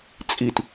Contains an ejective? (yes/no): yes